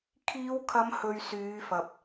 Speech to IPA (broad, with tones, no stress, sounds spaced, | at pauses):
kʰ iː˨˧ w kʰ ɐ˨˧ m h ɵ˨ ɥ s yː˨˧ f ɐ˨ p̚